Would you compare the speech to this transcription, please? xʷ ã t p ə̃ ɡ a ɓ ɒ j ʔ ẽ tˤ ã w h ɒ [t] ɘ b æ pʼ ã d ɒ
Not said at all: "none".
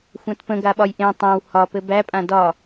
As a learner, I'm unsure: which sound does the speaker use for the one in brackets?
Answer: p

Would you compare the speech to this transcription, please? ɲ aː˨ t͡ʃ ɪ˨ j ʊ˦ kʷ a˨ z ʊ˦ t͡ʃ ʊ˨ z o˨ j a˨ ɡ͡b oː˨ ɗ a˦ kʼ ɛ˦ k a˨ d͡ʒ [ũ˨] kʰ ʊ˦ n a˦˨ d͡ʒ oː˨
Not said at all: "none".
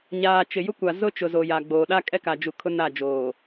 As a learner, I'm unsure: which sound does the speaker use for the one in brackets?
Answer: u˨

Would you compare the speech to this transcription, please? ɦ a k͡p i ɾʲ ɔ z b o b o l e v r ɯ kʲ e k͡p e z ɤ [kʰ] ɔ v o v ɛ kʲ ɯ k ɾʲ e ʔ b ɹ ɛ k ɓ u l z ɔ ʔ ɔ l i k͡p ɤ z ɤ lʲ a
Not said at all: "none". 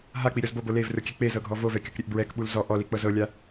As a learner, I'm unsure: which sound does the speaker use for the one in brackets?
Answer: ɡʱ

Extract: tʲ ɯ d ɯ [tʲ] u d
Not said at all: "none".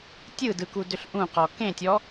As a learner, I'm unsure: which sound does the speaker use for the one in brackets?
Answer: k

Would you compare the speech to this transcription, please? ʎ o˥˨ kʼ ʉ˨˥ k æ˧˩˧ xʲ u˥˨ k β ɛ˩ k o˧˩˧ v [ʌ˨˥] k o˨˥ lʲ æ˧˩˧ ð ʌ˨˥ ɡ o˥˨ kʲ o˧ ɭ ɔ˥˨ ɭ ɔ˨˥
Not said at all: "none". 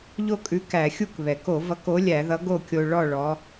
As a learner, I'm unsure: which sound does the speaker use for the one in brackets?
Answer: ʌ˨˥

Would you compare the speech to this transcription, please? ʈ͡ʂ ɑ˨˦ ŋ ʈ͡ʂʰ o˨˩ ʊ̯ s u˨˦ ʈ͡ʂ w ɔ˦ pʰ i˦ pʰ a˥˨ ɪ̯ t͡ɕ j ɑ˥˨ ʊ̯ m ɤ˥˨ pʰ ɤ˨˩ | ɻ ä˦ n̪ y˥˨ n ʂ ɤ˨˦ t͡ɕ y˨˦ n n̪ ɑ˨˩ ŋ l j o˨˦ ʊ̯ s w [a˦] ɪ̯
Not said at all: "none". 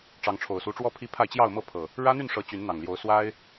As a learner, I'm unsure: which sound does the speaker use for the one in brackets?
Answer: a˦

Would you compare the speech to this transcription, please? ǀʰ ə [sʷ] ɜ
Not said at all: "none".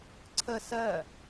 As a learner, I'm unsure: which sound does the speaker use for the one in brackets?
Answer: s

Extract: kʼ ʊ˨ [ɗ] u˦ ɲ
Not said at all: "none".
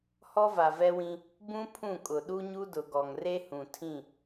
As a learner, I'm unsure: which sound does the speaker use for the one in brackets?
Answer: ɗ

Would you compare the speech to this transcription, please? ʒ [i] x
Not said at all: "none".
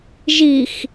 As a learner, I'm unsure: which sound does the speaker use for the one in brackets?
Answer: i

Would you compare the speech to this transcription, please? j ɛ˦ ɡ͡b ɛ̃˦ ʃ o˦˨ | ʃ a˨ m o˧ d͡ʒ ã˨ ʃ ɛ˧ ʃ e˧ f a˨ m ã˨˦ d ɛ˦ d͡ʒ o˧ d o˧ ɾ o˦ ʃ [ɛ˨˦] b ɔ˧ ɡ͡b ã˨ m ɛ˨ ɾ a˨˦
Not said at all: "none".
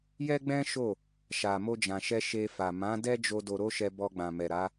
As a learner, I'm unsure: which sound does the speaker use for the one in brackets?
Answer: ɛ˧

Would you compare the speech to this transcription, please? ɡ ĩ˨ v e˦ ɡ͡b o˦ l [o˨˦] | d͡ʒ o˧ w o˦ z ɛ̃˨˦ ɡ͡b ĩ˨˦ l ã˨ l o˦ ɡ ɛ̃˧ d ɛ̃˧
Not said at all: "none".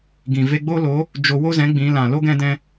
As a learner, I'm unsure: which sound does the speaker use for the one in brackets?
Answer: o˨˦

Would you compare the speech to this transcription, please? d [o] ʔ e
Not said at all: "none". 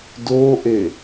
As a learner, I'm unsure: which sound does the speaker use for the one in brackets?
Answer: o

